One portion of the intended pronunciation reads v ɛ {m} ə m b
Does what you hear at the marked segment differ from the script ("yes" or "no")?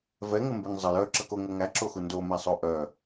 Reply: yes